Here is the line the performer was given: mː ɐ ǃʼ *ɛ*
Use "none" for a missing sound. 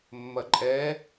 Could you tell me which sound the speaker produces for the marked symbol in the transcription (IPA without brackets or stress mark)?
ɛ